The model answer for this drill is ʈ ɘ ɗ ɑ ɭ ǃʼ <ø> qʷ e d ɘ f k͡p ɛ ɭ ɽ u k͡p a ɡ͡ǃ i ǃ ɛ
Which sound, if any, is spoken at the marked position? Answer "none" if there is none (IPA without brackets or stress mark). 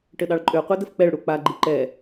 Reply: ø